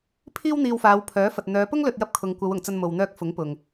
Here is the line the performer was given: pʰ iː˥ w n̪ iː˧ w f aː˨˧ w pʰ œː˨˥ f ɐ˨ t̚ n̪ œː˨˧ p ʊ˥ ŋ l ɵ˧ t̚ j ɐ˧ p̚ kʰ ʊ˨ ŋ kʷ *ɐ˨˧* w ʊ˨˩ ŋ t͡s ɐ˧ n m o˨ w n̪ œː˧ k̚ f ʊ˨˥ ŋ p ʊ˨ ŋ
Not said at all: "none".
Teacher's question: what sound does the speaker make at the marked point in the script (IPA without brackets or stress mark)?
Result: ɐ˨˧